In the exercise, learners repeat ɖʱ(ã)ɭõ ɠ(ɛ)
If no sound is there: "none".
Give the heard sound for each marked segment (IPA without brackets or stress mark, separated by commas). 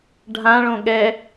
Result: ã, ɛ